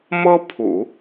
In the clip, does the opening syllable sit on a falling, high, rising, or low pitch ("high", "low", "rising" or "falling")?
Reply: high